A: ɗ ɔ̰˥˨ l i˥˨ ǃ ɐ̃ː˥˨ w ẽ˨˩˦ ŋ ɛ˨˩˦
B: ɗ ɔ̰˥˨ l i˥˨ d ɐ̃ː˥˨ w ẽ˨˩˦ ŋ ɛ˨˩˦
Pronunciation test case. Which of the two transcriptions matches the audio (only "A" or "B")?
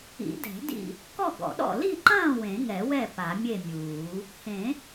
A